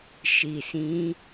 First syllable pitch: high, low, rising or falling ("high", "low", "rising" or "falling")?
low